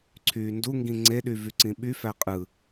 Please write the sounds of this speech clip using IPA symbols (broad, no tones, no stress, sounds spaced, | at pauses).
ǀʰ yː n d u ŋ ɡ ĩ ŋ͡ǀ e ɗ y v y ǀ ĩ ɓ y f æ qʼ ɯ